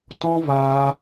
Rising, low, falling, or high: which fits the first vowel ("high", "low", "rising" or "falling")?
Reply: high